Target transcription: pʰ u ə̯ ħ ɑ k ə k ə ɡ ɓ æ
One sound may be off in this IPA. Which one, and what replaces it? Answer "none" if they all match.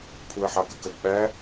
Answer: none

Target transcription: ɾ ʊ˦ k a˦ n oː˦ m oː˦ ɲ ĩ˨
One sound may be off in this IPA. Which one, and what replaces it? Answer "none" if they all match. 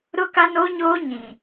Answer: m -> ɲ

